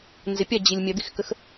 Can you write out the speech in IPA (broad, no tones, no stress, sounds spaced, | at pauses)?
n z ɪ pʲ a d͡ʑ i lʲ mʲ ɐ d̪ i x k ə x